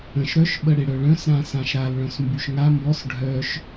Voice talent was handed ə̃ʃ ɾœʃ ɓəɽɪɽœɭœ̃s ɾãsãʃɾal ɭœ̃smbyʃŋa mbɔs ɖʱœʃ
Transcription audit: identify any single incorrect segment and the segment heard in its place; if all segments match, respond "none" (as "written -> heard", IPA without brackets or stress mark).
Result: none